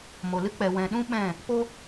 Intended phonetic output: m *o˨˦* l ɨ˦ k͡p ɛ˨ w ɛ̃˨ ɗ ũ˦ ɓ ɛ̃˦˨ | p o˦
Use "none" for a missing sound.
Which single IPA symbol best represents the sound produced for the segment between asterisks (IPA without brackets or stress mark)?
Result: o˨